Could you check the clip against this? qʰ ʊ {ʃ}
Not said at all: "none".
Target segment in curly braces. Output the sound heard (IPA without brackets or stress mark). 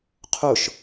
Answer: ʃ